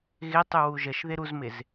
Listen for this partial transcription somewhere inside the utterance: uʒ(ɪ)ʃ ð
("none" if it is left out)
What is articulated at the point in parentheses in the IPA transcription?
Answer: ə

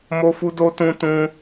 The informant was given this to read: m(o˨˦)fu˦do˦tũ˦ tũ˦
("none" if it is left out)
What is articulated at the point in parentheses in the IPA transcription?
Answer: o˦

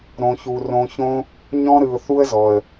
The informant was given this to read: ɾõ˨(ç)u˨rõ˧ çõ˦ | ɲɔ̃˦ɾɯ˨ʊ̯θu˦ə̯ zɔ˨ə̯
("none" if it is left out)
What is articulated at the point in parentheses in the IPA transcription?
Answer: ç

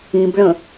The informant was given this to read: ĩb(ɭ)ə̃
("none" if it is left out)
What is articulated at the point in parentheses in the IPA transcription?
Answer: ɭ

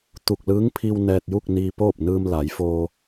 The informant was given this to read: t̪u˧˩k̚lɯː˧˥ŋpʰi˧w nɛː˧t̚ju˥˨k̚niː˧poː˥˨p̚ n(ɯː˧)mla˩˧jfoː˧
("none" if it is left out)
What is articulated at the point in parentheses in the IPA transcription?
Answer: ɯː˧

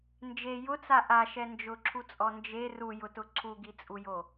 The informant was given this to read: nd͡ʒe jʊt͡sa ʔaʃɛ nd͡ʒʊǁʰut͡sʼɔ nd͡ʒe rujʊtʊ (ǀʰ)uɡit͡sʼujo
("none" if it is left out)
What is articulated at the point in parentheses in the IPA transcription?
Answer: ǀʰ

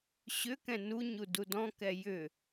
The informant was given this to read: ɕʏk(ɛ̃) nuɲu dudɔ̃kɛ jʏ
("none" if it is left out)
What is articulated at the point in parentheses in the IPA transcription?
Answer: ɛ̃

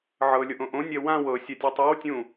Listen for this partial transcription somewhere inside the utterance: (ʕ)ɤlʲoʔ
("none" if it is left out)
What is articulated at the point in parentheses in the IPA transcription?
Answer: ʕ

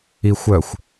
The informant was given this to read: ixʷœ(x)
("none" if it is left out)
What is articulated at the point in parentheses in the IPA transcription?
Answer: xʷ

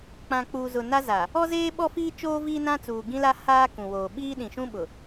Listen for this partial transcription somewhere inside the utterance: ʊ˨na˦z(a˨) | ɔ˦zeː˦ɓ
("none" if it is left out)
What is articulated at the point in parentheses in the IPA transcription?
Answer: a˨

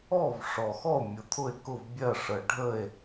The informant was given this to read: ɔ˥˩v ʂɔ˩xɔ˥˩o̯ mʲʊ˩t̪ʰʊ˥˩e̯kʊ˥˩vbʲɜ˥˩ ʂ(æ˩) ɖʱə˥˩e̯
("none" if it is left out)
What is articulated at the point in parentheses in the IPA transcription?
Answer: ə˩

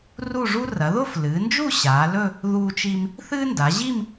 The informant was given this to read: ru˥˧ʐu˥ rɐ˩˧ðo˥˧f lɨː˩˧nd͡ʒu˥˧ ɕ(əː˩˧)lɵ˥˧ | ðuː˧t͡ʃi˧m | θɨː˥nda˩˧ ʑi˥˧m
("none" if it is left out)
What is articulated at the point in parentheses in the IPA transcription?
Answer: aː˩˧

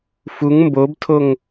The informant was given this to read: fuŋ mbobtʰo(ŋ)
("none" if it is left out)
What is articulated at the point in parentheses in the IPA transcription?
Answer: ŋ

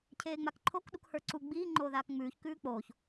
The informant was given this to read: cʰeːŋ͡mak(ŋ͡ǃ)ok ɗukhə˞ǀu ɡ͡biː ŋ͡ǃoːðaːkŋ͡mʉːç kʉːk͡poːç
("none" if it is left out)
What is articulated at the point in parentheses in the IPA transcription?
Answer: ǃʰ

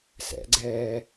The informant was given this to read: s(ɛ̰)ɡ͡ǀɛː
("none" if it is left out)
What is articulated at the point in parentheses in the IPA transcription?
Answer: ɛ̰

